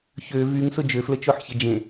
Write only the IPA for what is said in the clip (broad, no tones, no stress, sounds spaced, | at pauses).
ç ø v y ŋ s ʊ d͡ʒ ø f l ə t͡ʃ o ħ ç ɪ d͡ʒ ẽ